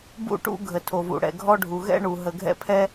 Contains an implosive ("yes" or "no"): no